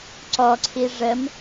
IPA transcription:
ǀ ɔ ǀʰ i ʐ ə m

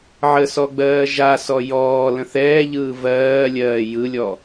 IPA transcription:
ʕ ə s ɔ ɡ͡b ɜː ʒ a s ɔ j ɔː l ə̃ θ ɛː ʎ ɯː v ɜː lʲ ɜː j ɯ lʲ ɔ

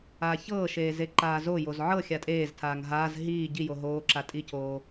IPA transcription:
aː ç ɤː ʃ eː z e ǃ aː z o j o z ʕ ɤ xʲ a tʼ eː z tʰ aː ŋ ɦ aː z ɦ iː ɟ i j o ɦ oː ǁ a tʼ i cʰ oː

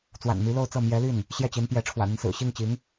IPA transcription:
t͡s w a̰˨˩ n m y˧˥ l o˥˧ ʊ̯ t͡s ɤ˥˩ m j ɛ˧˥ l y˥˩ n | ɕ j ɛ˥˩ t͡ɕ i˧˥ n p j ɛ˧˥ ʈ͡ʂʰ w ä̰˨˩ n̪ i˦ n s ɹ̩˨˩ ɕ i˥˩ ŋ t͡ɕ i˧˥ ŋ

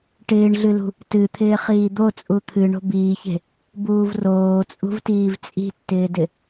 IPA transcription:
ʈ ɪː ɳ ɮ ɨ l ṳ | t ɨ t̪ʰ ɪː χ iː d̪ o t͡sʼ u t̪ʰ ɨ ɳ o̤ b iː ç e̤ | b uː v r oː t͡sʼ ṳ v t iː v t͡sʼ i̤ tː ɪː d ɪ

